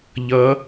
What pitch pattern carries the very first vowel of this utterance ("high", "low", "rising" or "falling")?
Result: rising